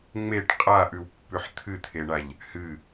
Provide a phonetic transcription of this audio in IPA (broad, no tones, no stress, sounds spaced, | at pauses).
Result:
ŋ͡m e ʈ qʼ a ʔ ʉ w pː ʉ ħ t̪ʰ ɨ t̪ʰ e ɳ a ʎ | h ɨ